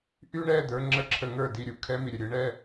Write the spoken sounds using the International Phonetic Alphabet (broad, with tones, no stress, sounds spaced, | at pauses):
ʔ y˦ ɳ ɛ˦˨ d̪ ə˞˧ ŋ͡ǁ ə˧ ǁʰ ə˧ ŋ ə˞˦˨ d i˧ ɾʲ u˨ kʰ ɛ˧ m i˨ ɾʲ ə˨ ɾʲ ɯ˨˦ ɳ ɛ˧